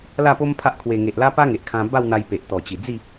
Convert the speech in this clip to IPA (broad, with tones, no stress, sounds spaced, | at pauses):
l a˥˧ p o˦ m pʰ a˦ ʔ kʰ w e˧ ŋ e˨ ʔ l a˦ p a˦ ŋ e˨ ʔ kʰ ã˧ b a˥˧ w n̪ a˧ j p e˨ ʔ t̪ ɔ˨˩ t͡ɕ i˨˩ d͡z i˥˧